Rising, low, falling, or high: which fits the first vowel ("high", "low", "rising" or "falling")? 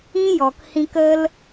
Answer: high